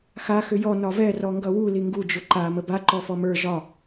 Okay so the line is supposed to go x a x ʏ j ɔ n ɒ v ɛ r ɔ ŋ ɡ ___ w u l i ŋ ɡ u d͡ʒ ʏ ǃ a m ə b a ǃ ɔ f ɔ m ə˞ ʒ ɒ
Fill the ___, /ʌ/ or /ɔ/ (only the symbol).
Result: ʌ